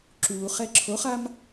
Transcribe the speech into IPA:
ǁ uː χ ɛ ǁʰ o χ a m

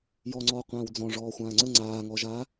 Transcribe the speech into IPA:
j ɔ ŋ͡ǀ ɔː qʷ ãː w d͡z ɔ̃ ʐ ɔː xʷ ãː ŋ͡ǀ ə ŋ͡ǀ aː ŋ ɔ ʒ a

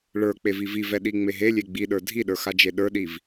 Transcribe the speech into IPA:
ɭ ə˞ k͡p e v i v i v ɛ ɗ i ŋ͡m e ɦ e lʲ e ɡ͡b i ɗ ə˞ dʱ i ɗ ə˞ x a d͡ʒ e ɗ ə˞ ɗ i v

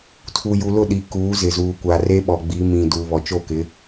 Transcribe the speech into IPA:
tʰ u˨ j u˨ l ʊ˦˨ ɗ i˨ k uː˨˦ z ɪ˨ z uː˨ kʷ a˨ r e˦ ɓ ɔ˨ ɡ͡b i˨˦ m ĩ˨ d uː˨ β ɔ˨ t͡ʃ o˦˨ k ɪ˨˦

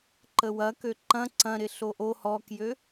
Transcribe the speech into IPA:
ǃ ə w ɐ k ø ǃ ɐ̃ ǀ ɐ̃ ɾ ɪ ɬ o ʔ o h ɔ k j ø

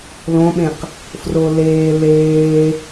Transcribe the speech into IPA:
l õ ɓ ẽ q | f r o l eː l eː

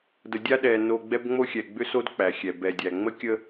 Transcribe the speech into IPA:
d ə˨ dʲ a˦ ɗ ɛ˨ n o˨ ɡ͡b ɛ˦ b ŋ͡m o˦ xʲ ɛ˨ ɡ͡b ʏ˦ s o˦ d k͡p æ˨ xʲ ɛ˨ b ɛ˨ dʲ æ˨ ŋ͡m ə˦ kʲ ə˦

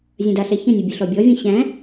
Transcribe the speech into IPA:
zʲ ɐ̃ d a ɬ ɛ ç ɐ̃ nʲ ɐ bʲ ɐ ɬ ɔ bʲ ɔ vʲ ɐ̃ ɕ æ̃

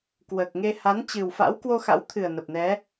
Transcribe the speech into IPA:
k w əː˨˩ k̚ ŋ e˧ h a˨˦ n t͡ɕ ɨ˨˩ w f a̰˧˥ w k w o˧ x a̰˧˥ w t̪ʰ ɨ˨˩ ə̯ n ə˨˩ p̚ n ɛ˨˦

